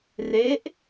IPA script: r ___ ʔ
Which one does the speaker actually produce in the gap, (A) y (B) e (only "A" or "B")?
B